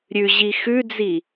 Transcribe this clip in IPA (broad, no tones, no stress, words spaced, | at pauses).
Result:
ɾʲʉʑi xʉd͡zi